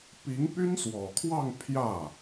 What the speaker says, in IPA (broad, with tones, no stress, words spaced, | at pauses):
pi˧˥ŋpy˥nswɔ˨˩kʰwɑ˥˧ŋ pʰjä˥˩